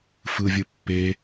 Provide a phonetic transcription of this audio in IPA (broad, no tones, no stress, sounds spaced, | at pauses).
f ɯ vʲ ɯ pː e